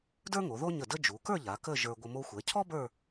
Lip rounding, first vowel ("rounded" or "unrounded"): unrounded